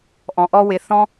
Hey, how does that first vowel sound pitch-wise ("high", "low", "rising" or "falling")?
low